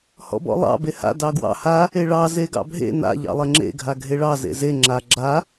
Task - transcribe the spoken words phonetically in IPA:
hɔ̰bɔ̰lˠɑ̰ beha̰ dɑɡwɑ̰ ha | eɭɑ zeɡɑ̰bʱḛ na̰ ʎɑ̰lˠeŋ͡ǁḛ ɡʱaɡʱeɭɑ zḛze ŋ͡ǁa ɡ͡ǁa

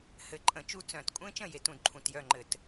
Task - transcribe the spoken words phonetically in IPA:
hɘ˧˩˧ǃʼə̃˧˩˧t͡ʃu˥˩ t͡sœ̃˧˩˧t kʷʼẽ˦˥t͡ʃə̃˥˩ je˦˥tũ˥˩dǃʰũ˧˩˧t jœ˥˩ŋ͡ǃɘ˧˩˧t

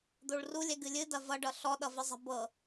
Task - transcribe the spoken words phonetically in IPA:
d̪oɭrulʲɛɡ ɨlʲɨ dɐvʌɖʌ ɬɔɗʌvɨzˤɛ̤ bɤ

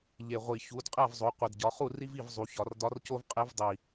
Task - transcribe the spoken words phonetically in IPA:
ʎe˨˩ʁʷi˨˩ çu˩˧d qʼæ˥˨vzˤo˩˧qʷe˨˩dɟɒ˩˧ χu˥˨ri˥vi˥˨v zˤu˩˧çɒ˧˩˧rdɒ˧˥rco˥v qʼe˧˥vdˤi˨˩

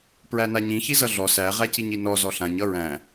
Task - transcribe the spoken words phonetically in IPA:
pɹænaɲĩ çizʌɮɔ sæ ʁæciɲinɔ zɔɬãɲ ʌɹæ̃

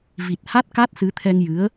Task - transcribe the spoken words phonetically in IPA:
vi˨˩t̚ha˦˥t̚ka˦˥t̚ sɨ˧˥t̪ʰɛ˧ŋjɨ˧˥ə̯

